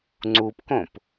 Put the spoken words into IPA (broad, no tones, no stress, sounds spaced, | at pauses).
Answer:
ŋ͡ǀ u p k õ p